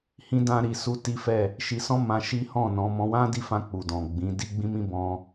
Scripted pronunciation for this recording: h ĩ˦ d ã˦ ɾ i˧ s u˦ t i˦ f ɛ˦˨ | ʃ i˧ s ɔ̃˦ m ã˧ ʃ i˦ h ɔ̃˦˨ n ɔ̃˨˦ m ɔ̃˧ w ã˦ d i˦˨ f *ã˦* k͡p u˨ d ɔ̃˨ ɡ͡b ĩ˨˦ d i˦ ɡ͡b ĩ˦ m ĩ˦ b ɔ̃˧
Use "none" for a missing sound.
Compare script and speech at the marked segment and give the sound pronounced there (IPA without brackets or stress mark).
ã˧